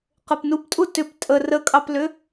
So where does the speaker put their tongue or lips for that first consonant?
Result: uvula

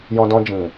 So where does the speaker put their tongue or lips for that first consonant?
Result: palate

